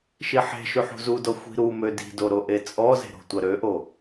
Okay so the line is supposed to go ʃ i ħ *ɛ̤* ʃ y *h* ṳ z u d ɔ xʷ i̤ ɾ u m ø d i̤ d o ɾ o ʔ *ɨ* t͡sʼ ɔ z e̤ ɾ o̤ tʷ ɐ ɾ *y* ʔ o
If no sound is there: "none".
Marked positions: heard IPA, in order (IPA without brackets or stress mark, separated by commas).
e̤, ħ, e, ø